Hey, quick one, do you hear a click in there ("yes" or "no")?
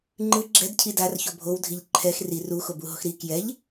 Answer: yes